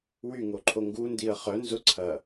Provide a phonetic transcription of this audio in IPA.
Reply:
w y ŋ o ǃʰ o ŋ ɡ u n d i ə̯ χ œ n z ʊ ǀʰ ɐ

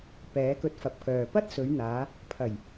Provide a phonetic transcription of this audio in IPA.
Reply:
p ɛː˨˥ k ɵ˧ t̚ f ɐ˨˥ p̚ k œː˨ p ɐ˥ t̚ s ɵ˨˧ ɥ n̪ aː˨˧ | pʰ ɐ˨˩ j

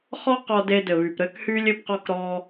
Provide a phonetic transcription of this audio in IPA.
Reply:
χ ɔ˦ q ɔ˧ d e˧ d ɘ˨ β y˨ p ɾ ɘː˦ k h yː˦ lʲ ɘ˧ p q ɔ˧ k ɾ ɔː˧

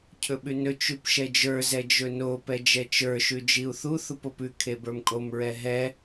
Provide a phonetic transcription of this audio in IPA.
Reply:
cʰ ɵ ɓ ʉ n ɵ t͡ʃ ʉ p ʃ ɛ d͡ʒ ə˞ z ɛ d͡ʒ ɵ n o p ɛ d͡ʒ ɛ t͡ʃ ə˞ ʃ ʉ d͡ʒ i u̯ θ u θ u p o p ʉ kʰ e b ə˞ m kʼ o m ɹ ɛ ɦ ɛ

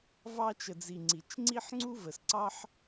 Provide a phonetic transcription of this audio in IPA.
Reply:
v ɑ˧ t͡ʃ ə˨ d͡z i˨ ŋ͡ǀ i˨ t͡ʃ ŋ͡ǀ i˦ ħ ŋ͡ǀ u˦ v ə˨ s ǀ ɑ˦ ħ

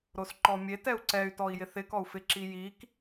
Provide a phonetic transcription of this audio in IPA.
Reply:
ɾ o s ǃ ɔ mʲ e t ɛ u̯ ǀ ɛ y̯ t ɔ i̯ j ɪ θ ɪ k ɔ u̯ f ɪ ǁ i j i k

